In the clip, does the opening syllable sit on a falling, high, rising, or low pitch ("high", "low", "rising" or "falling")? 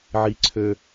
high